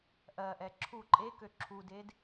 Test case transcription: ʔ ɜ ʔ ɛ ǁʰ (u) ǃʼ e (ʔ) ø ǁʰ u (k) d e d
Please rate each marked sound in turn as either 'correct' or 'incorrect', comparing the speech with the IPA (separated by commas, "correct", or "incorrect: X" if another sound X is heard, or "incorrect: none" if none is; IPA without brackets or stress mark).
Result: correct, incorrect: k, incorrect: none